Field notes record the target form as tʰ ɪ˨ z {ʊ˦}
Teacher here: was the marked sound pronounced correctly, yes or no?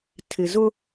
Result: yes